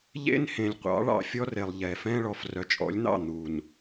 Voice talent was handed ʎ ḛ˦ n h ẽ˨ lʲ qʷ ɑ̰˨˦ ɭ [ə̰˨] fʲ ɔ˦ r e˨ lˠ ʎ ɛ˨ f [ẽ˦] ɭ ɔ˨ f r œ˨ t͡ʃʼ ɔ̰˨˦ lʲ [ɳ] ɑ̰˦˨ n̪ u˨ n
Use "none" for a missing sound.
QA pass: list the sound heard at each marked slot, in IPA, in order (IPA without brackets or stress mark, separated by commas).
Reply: ɑ̰˨, ɛ̃˦, n̪